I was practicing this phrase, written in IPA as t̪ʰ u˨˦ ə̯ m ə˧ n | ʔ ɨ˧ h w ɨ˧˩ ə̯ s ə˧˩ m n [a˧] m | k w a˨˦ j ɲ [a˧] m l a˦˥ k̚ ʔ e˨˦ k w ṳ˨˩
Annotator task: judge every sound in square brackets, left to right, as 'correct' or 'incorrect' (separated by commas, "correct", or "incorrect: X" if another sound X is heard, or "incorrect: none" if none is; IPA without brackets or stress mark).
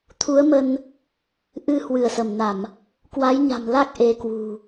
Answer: incorrect: a˧˩˨, incorrect: a̤˨˩